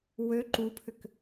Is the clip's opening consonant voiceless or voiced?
voiced